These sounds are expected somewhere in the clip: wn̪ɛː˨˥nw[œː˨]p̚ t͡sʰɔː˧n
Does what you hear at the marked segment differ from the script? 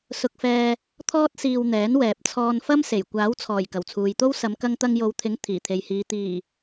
yes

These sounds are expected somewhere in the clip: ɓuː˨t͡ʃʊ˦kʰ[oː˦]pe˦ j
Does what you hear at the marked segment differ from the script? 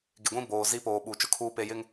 yes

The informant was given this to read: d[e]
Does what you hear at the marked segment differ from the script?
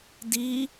yes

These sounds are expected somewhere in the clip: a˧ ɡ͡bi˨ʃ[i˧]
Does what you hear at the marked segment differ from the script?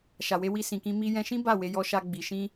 yes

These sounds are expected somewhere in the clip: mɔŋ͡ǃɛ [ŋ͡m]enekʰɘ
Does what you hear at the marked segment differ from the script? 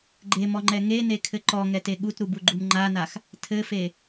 yes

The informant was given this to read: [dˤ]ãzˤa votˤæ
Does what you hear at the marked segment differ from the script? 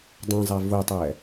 no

